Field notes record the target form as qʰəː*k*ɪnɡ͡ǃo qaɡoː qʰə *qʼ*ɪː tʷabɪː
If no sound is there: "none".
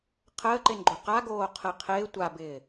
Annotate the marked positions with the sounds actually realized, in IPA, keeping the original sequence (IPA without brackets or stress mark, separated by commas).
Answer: ǃ, qʰ